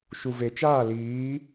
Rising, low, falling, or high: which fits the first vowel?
low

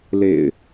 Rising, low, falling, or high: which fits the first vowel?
low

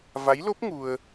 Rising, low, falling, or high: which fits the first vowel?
rising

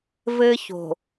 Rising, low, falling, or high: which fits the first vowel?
high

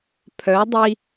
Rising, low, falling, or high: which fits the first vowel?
rising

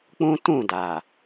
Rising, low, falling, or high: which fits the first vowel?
high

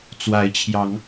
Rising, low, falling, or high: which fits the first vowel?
rising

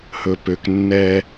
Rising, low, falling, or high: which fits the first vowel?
low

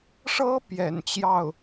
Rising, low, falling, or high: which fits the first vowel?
high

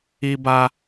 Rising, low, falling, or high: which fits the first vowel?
high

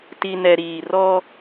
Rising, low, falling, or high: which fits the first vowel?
low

